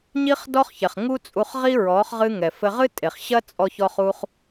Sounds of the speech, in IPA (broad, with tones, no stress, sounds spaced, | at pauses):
ɲ i˦ χ d ɔ˦ χ ç ɛ˨ χ ŋ u˦ t͡sʼ u˧ χ ʁ i˦ ɹ ɔ˨˦ χ ʁ ɨ˧ ŋ ɛ˨ f ɘ˧ ʁ ɨ˦ tʼ e˨ χ ɕ ɐ˦ t͡sʼ ɔ˦ ç ɔ˦ χ u˦ χ